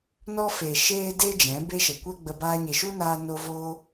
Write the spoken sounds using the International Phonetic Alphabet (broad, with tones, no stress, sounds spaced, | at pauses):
n ɔ˦ f e˨ ʃ eː˦ d e˦ d͡ʒ ɛ̃˨˦ b e˦ ʃ ə˨ kʷ ɛ˦ ɡ͡b ə˧ b aː˧ ɲ e˨ ʃ u˦ n aː˧ n o˧ v oː˧